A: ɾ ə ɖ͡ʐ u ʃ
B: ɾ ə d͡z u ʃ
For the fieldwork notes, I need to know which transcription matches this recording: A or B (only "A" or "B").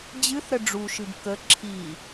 A